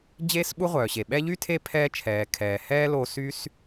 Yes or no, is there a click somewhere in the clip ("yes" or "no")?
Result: no